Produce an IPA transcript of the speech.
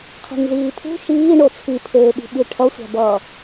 qʰ i̤ ŋ z iː pʰ ṳ ʃ iː ɳ o t͡sʰ i pʰ eː ɓ i̤ ɓ i ʈʰ ʌ sʷ a̤ b ʌː

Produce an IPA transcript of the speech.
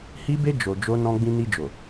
h i˦ b e˦ d͡ʒ o˧ d͡ʒ o˦ n ɔ̃˦ ɡ͡b ĩ˧ n i˧ d͡ʒ o˨

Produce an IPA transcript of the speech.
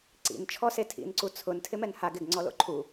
ǀ ḭ n t͡ʃʰ ɔ s e tʰ ḭ n ǀ u t͡sʰ ʊ n tʰ ɪ m ɛ n h a ɡ ɪ ɡ ŋ͡ǀ ɔ l o̰ ǃʰ u

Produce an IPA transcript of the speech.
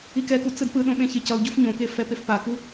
i k ɛ k u t͡s ɯ d p ɯ ɗ õ ɓ ẽ ç e c ʌ u̯ ɟ u f ɲ õ k e f ɛ p e f p a k u

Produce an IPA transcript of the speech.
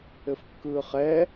ɘ f kː ɯː χ ɛ

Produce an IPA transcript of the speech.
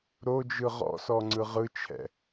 ɾ o d͡ʒ ɯ ʁ ɔ̰ s ɔ ŋ͡ǀ ɯ ʁ ɯ t͡ʃʰ ɛ̰

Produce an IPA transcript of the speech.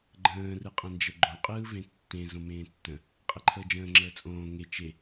ɡ͡ǃ ə̃ː r ɯ qʼ ə̃ n d͡ʒ ə ɡ͡ǃ õ qʼ ɯː v ẽ tː ẽ z õ m ẽː tː ə̃ | qʼ e ǃʰ əː d͡ʒ ə̃ː ŋ͡ǁ əː t͡sʼ õː ŋ e t͡ʃ e

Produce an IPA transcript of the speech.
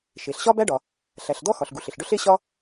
ʃ e˩ ɬ ɕ ɒ˥ b æ˥ ɖ ɒ˩ | ɬ æ˩ ɬ d̪ ɔ˥ x ɒ˩ ɬ ɡ u˩ ɬ ɪ˩ ɬ ɖ ɵ˥ ɬ e˥ ɕ ɒ˥

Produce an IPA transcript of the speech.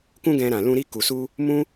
k ũ˦ ɡ ɛ̃˧ ɾ ã˨ l ũ˧ ɾ i˧ k u˨ s u˧ | m ũ˦

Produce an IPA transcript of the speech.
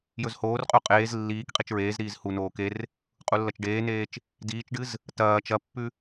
j ɵ z h oː r qʼ u qʼ eː z lː iː k qʼ i t͡ʃ ɹ eː z ɾ iː z h u n oː k e r | qʼ u lː ɐ t͡ʃ ɖ eː n eː t͡ʃ | d iː t͡ʃ ɖ ɨ z | t ɐː t͡ʃ ɐ pː ʉ

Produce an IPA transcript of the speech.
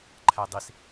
ǃʰ æ dˤ i s

